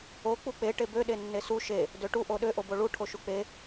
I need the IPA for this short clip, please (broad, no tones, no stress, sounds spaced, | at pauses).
o k͡p u k͡p e ʈ e b ø ɗ e nː e s u ʃ e | d ø ʈ u ʔ o ɗ ø ʔ o b o ɭ u ʈʰ o ʃ u k͡p e